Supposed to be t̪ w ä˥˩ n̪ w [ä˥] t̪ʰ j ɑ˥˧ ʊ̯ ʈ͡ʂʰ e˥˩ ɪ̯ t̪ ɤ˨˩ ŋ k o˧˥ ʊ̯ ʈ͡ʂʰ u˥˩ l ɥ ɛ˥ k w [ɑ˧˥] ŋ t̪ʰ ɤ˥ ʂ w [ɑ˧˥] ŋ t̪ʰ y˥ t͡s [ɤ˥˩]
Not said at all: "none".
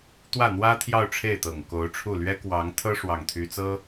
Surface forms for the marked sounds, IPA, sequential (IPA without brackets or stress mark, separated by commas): ä˥, ɑ˧˥, ɑ˥˩, ɤ˥